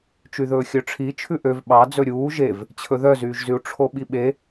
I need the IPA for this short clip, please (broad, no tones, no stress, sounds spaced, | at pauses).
t͡ʃ y ð ɵː xʲ œ ʈ͡ʂʰ i t͡ʃʰ ʉ ʔ ø v ɓ ɑ d͡z ɵ ɾʲ uː ʒ e v | t͡ɕʰ ɵ ð œ z yː ʒ z y u̯ ʈ͡ʂʰ o ɓ i ɓ e